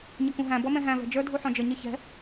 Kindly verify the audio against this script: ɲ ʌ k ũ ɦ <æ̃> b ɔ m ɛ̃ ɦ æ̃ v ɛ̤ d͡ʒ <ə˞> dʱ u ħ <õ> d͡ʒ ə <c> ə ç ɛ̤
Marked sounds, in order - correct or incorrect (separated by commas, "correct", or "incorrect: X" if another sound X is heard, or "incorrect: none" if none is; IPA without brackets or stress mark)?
correct, correct, incorrect: ɔ̃, incorrect: ɲ